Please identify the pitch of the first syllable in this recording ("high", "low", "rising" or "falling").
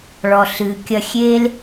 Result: low